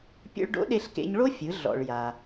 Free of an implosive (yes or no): no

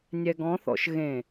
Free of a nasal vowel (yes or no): no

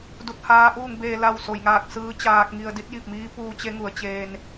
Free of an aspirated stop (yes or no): yes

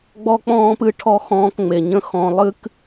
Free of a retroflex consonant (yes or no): no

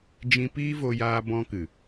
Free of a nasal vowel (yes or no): no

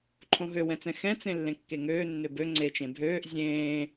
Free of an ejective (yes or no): yes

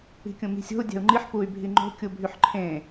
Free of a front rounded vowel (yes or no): no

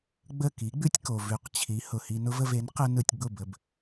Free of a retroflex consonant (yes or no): yes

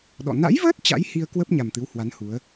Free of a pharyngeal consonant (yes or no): yes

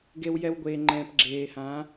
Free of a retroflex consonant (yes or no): yes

